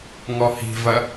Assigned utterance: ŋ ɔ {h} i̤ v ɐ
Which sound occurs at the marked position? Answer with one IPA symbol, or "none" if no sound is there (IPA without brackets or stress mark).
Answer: h